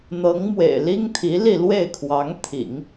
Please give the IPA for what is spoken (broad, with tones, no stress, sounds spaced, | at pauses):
n̪ ɤ˧˥ ŋ m w ḛ˨˩ ɪ̯ l i˥ ŋ t̪ʰ i˧˥ l i˥˧ l w e˥˩ ɪ̯ kʰ w ɑ˧˥ ŋ t̪ʰ ḭ˨˩˦ ŋ